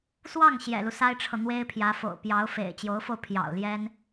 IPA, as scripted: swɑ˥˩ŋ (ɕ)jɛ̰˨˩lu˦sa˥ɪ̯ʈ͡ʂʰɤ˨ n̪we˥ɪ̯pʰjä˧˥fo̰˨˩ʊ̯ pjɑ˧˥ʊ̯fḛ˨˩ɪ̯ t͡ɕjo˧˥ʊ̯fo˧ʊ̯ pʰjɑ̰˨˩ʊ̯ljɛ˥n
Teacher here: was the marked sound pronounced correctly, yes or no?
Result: yes